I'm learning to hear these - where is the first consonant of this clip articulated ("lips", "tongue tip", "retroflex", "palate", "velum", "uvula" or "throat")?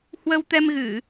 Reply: throat